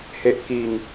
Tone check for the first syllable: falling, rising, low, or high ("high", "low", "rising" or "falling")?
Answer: low